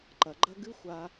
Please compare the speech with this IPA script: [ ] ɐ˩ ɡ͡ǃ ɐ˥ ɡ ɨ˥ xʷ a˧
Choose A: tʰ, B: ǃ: B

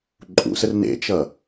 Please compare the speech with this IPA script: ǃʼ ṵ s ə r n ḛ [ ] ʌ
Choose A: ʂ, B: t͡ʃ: B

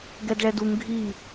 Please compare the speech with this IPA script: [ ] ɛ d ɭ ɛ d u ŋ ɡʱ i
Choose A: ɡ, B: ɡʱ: A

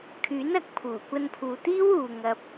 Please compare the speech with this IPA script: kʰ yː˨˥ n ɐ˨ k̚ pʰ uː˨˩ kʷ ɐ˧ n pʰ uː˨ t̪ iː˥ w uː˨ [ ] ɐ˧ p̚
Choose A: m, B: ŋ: B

